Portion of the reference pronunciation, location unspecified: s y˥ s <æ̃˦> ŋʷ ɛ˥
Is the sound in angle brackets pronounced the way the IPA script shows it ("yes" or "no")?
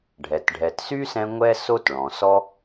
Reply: no